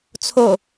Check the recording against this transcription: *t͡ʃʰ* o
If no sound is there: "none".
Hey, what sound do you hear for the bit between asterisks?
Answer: t͡sʰ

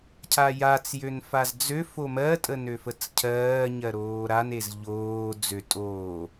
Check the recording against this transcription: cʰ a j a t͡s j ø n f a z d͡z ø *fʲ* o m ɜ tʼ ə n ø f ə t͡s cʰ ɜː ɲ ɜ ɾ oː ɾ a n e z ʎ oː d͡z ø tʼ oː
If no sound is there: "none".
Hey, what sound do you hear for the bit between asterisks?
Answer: f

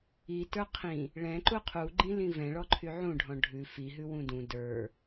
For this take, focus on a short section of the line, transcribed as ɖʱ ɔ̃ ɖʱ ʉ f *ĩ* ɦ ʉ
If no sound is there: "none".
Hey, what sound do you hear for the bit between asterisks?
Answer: i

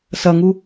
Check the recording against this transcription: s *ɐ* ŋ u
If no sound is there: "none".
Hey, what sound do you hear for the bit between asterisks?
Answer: ɐ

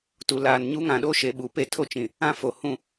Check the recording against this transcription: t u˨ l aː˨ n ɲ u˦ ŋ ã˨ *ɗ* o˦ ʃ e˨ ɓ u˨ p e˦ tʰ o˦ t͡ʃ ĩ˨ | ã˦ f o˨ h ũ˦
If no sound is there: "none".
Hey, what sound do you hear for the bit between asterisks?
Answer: ɗ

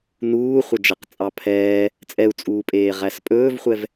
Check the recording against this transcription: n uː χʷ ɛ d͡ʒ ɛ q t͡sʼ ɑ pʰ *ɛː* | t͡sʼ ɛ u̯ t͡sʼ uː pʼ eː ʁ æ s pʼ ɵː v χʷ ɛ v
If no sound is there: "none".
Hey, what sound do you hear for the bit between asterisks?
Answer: ɛː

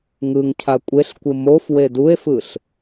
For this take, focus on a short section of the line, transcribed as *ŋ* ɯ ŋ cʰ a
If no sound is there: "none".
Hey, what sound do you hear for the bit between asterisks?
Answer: ŋ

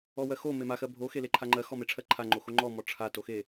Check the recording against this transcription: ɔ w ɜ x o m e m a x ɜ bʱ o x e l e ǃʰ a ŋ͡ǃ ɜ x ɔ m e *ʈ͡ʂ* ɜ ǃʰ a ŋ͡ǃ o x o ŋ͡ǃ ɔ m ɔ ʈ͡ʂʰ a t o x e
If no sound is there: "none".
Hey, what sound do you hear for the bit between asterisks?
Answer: ʈ͡ʂʰ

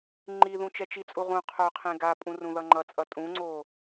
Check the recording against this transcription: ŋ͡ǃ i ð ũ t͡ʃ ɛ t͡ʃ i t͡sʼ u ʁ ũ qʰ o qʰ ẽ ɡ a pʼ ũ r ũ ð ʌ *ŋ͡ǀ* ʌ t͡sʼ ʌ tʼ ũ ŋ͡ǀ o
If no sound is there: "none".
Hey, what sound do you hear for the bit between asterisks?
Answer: ŋ͡ǃ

